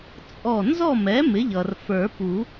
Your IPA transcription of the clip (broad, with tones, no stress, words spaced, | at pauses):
t͡sʼɔ˧˩ nzɔ˥˨mɛ˩˥ mɪ˩˥ʎʌ˩r fə˞˨˩˦pu˨˩˦